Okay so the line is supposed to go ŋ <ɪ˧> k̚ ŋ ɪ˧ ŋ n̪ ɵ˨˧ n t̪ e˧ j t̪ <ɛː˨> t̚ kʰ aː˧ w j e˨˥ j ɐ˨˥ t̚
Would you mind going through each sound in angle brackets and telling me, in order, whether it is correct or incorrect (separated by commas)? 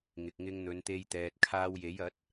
incorrect, correct